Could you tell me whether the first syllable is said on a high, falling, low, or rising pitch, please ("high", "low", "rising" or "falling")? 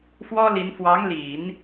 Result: high